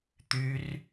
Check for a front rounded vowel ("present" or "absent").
present